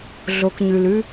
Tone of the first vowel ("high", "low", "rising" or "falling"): low